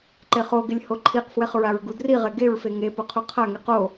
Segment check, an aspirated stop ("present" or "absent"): present